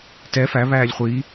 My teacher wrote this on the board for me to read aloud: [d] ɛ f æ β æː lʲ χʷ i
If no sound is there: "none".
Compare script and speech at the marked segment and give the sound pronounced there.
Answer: t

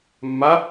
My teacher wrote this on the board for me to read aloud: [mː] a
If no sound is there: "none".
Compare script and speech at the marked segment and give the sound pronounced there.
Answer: mː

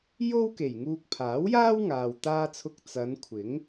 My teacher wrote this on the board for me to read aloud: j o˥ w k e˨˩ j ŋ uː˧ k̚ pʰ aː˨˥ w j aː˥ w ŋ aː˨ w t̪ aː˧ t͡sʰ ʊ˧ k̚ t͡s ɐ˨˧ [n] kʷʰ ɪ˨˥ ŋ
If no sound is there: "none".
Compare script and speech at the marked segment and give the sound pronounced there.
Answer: n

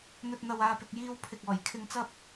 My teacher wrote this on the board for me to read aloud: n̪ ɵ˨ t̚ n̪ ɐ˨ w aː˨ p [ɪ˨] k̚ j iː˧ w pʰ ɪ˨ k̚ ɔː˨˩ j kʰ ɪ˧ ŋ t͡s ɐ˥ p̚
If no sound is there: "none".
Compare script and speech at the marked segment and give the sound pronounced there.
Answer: ɪ˨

